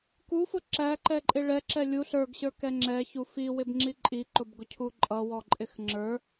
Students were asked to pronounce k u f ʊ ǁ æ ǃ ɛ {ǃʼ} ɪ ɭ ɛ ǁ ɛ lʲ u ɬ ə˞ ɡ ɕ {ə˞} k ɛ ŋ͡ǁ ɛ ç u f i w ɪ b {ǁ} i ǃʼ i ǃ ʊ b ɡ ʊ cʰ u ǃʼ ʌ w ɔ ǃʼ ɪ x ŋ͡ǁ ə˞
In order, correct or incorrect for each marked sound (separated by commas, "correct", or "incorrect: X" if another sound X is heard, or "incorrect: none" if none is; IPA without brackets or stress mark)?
correct, correct, incorrect: ŋ͡ǁ